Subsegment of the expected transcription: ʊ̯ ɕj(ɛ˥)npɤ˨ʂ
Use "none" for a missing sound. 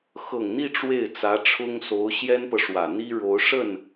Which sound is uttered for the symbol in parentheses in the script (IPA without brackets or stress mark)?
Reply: ɛ˥